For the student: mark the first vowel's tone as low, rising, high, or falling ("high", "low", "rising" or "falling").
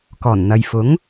low